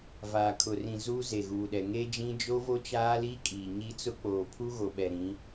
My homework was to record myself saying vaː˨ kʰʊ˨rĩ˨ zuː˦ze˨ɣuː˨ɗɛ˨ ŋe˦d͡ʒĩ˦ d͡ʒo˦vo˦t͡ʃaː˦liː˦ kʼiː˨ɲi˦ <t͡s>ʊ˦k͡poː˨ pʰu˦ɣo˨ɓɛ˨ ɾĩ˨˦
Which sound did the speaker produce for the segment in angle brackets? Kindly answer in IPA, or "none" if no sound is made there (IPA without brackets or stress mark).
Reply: t͡s